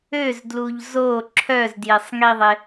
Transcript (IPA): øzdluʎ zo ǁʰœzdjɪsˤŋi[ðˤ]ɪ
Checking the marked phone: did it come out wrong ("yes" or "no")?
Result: no